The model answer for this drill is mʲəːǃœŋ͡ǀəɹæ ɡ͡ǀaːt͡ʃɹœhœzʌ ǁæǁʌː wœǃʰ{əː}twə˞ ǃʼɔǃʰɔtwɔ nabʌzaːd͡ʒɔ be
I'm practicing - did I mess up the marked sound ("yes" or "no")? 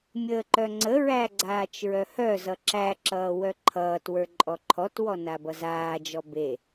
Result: yes